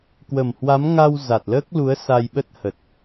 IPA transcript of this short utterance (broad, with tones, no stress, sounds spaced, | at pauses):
k w ə˨˩ m h w a˨˦ m ŋ a˧ w z a˨˩ t̚ l əː˦˥ k̚ l u˨˦ ə̯ s a˧ j ɓ ə˦˥ t̚ h ə˨˩ t̚